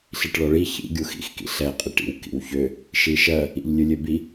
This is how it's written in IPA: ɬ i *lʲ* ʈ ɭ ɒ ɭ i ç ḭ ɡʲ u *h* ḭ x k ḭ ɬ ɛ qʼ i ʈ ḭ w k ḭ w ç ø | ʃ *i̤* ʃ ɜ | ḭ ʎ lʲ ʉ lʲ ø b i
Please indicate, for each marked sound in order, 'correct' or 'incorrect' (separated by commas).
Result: incorrect, incorrect, incorrect